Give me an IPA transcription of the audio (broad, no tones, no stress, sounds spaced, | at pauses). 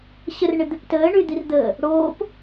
ɕ ə r ɳ ɪ d̪ ɪ p t əː ɳ y d̪ i r d̪ əː | ɽ oː p